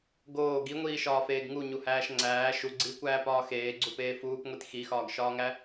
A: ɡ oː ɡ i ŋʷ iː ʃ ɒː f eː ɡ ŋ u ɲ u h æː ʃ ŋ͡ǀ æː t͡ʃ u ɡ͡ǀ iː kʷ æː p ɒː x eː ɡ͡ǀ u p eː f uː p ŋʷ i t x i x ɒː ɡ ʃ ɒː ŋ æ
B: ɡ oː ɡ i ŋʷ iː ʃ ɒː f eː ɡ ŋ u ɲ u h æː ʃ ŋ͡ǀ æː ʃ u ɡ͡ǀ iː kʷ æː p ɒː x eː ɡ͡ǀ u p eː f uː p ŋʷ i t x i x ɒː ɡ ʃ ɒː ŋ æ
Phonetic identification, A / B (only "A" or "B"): B